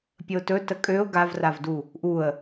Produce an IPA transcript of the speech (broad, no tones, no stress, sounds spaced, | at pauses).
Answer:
pʲ ə ʊ̯ t ɵ t ə kʼ ø ʊ̯ ɡ a v r a v d u | ʔ u ə̯